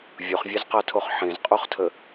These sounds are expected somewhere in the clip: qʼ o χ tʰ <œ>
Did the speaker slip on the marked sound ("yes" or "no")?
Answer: yes